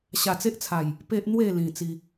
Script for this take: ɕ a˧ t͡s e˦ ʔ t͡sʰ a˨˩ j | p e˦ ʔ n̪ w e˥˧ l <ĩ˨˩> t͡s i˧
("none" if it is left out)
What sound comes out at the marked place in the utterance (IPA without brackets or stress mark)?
ĩ˨˩